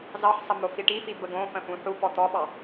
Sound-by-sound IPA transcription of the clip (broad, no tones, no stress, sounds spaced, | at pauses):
z ɑ ħ sˤ ə m o f i ʈ i f i b ə ɡ õ f ə̃ f ũ ħ u p ɔ t̪ ɔ ɓ ɑ